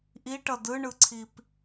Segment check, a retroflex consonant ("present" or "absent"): present